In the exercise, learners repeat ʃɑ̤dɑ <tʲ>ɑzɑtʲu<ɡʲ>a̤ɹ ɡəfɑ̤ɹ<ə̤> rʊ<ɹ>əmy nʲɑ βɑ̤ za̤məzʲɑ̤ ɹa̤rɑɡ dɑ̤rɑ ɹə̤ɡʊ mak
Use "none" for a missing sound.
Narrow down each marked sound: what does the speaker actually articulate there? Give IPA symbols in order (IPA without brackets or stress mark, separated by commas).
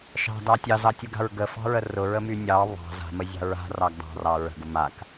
tʲ, ɡ, ə, ɹ